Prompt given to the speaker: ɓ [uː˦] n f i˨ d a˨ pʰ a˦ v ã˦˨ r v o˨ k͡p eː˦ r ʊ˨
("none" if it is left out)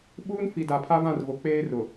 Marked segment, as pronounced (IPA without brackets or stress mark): uː˦